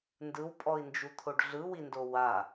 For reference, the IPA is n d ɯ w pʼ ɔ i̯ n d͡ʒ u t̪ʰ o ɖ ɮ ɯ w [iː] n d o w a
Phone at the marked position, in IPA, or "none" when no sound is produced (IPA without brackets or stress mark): i